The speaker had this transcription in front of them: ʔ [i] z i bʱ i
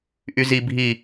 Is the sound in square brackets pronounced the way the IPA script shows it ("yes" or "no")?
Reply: no